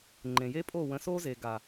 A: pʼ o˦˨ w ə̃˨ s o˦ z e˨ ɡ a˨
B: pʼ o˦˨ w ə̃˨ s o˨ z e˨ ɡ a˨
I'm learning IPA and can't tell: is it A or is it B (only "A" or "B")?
A